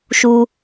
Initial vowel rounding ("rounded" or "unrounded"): rounded